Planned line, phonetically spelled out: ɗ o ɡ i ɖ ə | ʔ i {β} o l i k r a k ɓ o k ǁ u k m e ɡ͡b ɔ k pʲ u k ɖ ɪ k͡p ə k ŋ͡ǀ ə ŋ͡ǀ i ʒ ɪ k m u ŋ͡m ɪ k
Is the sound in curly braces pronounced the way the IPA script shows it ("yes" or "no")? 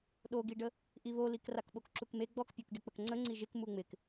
yes